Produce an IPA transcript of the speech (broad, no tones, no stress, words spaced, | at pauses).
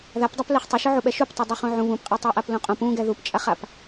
ðapdˤap leχtˤʊʃʊ ʕuɓɛʃuptˤɛ dˤaχũʕũ βũpqʼɛ tˤaʔaplũqʼõp ũ ɡɛðupt͡ʃʼaχap